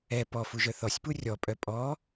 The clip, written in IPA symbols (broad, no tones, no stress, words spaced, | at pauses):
ɛ pɔfuʒœ θɔsʲpu rʲɔpʼœ pʼɔ